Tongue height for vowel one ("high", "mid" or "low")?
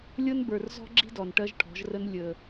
mid